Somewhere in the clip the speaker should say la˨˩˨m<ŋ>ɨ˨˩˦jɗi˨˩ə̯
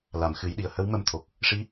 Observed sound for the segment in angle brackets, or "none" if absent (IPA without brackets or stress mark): x